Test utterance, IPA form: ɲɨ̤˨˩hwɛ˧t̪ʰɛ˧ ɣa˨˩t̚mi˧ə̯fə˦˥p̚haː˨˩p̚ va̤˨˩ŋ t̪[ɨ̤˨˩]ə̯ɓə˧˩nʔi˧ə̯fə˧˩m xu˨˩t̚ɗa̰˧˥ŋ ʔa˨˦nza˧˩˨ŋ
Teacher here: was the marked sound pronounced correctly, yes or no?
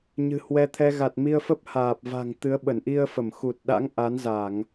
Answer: no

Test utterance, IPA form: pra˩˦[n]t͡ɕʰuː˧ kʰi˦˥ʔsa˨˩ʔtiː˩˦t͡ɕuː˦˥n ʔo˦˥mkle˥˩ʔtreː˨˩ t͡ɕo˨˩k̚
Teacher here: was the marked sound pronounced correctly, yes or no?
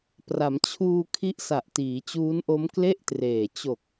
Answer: no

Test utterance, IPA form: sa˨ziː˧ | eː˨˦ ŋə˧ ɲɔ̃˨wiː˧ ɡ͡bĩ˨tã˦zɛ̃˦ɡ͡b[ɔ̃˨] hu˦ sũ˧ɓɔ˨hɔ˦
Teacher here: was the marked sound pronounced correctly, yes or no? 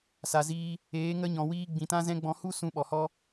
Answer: no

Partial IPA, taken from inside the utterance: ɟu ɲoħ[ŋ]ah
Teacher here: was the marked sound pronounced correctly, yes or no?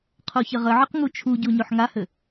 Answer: yes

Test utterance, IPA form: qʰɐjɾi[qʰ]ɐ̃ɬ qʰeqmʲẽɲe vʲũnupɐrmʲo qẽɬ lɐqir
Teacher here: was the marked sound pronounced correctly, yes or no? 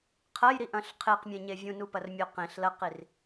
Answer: no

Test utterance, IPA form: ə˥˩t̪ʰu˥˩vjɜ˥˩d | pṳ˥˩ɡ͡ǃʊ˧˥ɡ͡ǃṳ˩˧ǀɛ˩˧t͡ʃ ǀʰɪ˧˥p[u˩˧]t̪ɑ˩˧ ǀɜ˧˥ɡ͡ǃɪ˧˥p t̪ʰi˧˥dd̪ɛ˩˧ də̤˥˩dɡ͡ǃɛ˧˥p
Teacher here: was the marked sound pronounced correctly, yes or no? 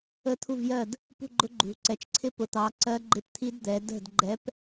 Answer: no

